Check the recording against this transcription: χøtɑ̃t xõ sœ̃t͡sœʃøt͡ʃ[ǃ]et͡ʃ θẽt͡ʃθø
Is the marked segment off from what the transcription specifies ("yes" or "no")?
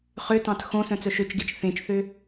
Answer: yes